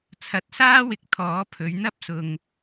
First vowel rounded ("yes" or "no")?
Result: no